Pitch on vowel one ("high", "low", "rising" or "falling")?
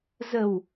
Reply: low